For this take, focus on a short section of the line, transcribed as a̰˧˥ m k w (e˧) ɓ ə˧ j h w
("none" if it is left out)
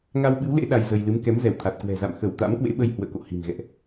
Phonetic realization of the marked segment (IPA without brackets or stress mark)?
ḛ˧˥